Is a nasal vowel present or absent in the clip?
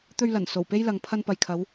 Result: absent